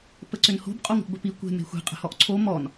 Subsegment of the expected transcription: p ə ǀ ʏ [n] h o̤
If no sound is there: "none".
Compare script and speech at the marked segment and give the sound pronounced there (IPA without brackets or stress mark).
n